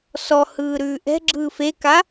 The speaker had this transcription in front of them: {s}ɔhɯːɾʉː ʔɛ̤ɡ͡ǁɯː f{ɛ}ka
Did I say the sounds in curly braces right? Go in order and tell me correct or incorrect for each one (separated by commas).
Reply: correct, incorrect